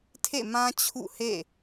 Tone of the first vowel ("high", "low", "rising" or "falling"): falling